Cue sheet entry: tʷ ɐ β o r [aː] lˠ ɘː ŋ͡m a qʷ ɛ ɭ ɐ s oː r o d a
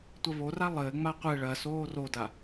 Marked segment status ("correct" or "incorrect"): incorrect